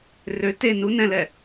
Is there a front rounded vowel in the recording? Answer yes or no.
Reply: yes